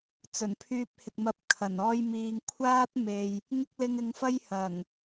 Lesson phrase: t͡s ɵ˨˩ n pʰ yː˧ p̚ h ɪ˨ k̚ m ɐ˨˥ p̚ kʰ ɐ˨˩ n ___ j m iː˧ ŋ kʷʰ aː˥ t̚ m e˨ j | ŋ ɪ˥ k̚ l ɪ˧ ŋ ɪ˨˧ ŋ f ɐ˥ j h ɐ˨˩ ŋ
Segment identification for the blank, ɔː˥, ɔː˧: ɔː˥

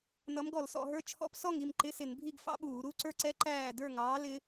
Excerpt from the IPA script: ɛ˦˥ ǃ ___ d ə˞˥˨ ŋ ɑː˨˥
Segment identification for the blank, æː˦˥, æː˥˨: æː˥˨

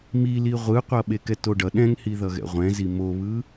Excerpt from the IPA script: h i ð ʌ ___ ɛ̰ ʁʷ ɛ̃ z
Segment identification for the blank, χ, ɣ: ɣ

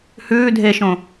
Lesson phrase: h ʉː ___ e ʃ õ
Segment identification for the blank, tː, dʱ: dʱ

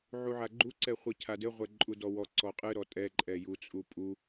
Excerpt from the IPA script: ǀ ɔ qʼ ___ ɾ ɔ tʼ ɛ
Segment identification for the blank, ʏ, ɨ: ɨ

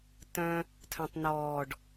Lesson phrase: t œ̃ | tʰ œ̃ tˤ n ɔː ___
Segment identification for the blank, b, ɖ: ɖ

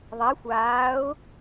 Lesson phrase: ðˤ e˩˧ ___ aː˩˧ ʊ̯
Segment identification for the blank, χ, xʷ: xʷ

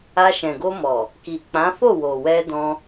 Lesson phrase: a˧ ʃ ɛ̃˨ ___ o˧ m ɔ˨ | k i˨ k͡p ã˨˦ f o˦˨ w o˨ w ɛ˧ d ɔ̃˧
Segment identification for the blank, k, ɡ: ɡ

